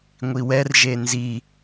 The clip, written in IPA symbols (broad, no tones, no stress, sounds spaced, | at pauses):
ŋʷ i w ɛ r ʒ e n z i